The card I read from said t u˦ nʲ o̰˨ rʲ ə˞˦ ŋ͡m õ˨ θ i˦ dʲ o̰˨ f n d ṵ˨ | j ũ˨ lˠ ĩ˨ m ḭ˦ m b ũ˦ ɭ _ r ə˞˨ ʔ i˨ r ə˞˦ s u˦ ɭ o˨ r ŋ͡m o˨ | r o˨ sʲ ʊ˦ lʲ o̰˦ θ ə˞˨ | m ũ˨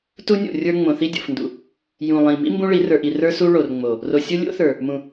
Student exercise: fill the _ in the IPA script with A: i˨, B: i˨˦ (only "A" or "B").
B